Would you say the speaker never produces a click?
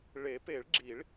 no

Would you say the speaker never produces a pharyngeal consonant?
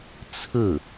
yes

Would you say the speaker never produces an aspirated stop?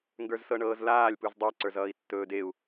yes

